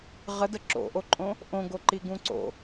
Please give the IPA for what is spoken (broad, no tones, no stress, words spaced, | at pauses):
ʁədə ǁo̰ʔoǃʼõ | ʔõɡoǃiɡũ ǀo̰